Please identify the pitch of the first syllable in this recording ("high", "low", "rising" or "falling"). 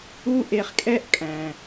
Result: high